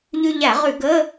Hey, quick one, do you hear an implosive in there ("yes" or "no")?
no